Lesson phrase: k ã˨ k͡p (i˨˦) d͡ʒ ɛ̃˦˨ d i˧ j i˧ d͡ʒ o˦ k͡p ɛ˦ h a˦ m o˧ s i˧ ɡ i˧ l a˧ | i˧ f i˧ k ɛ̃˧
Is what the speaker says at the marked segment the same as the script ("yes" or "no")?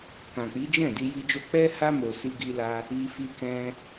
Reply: yes